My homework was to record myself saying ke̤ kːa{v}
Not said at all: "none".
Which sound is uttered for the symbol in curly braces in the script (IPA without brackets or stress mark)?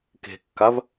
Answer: v